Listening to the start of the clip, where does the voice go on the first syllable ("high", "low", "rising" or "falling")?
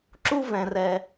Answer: high